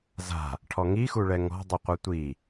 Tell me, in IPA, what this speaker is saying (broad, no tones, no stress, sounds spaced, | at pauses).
z a̤ | ʈʰ ɔ ŋ i x u ɭ ɛ ŋ ɔ̤ dˤ ɨ qʷ ɐ tʷ i